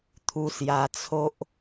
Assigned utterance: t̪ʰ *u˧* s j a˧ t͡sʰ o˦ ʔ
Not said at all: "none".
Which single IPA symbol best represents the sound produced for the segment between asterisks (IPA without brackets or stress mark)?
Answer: u˧